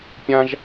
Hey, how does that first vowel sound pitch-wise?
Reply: high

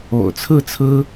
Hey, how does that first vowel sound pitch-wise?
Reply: low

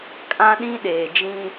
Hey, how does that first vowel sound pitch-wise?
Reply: high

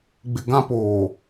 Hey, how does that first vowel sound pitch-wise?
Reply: low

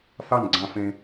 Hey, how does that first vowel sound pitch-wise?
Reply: falling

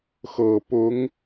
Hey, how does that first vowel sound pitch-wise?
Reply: low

